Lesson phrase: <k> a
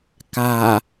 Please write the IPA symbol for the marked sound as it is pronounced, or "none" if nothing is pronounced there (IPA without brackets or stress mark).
k